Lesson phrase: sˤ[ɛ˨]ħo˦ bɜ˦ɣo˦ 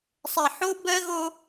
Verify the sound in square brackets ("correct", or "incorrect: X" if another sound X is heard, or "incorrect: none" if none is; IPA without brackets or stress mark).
correct